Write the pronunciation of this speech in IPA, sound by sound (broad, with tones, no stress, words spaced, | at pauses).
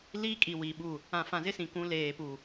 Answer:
liː˦kʼi˨ wi˨ɓu˦˨ | ã˨fã˨zɪ˦sĩ˨ kũ˨˦leː˨pu˨